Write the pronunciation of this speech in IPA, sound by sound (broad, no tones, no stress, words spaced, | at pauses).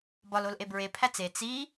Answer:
bɒlolʔe bɹepʰæt͡s e t͡si